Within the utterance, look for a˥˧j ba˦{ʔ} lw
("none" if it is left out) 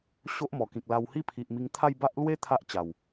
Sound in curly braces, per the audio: ʔ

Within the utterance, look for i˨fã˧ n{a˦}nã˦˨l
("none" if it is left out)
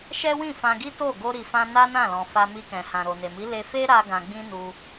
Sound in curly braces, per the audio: a˦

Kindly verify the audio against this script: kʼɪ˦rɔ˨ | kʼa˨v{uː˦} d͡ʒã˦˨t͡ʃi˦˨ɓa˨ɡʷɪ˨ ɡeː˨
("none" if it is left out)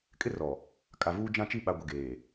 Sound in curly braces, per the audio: uː˦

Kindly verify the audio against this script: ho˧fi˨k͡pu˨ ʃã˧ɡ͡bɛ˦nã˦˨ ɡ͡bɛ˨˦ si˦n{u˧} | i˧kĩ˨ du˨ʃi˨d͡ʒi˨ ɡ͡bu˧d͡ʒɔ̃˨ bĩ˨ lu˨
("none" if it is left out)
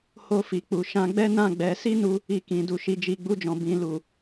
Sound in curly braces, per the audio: u˧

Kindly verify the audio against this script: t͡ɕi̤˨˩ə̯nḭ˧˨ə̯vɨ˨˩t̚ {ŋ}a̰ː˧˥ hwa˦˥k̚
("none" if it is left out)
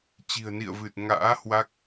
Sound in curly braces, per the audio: ŋ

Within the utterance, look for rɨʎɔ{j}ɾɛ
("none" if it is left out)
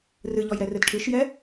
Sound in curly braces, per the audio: j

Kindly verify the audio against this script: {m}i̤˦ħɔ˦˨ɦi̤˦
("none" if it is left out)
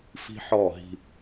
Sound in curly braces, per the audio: f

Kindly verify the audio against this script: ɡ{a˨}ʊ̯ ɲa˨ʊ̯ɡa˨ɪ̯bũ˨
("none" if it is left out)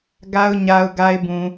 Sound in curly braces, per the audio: a˨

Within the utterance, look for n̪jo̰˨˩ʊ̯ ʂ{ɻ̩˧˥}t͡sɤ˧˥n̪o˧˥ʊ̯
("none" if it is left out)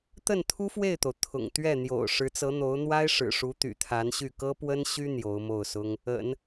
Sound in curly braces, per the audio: ɻ̩˧˥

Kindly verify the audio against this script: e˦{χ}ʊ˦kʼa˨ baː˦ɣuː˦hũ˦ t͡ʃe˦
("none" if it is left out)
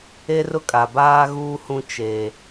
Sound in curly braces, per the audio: r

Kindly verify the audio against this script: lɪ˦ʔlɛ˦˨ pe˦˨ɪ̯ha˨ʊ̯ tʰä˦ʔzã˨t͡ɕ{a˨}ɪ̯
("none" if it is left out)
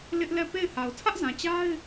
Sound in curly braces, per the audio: a˦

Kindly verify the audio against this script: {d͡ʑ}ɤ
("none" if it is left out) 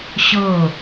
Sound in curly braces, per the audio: ɕ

